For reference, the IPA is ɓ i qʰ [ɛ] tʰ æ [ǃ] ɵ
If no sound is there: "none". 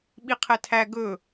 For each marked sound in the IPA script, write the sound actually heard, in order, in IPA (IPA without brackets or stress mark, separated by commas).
ɛ, ɡ